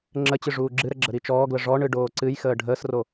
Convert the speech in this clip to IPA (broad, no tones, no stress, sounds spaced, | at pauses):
ŋ͡ǁ ə t͡ɕ ɨ ʐ uː ɡ͡ǁ ɨ ɾ ə ɡ͡ǁ ə ɾ i t͡ʃ ɔː ɡ l ə ʐ ɔ ɳ ɨ ɖ oː ǀ ɨ j x əː ɖʱ əː s r o